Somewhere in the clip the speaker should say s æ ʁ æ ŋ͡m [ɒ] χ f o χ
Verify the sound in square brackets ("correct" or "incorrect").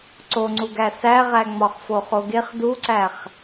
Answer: correct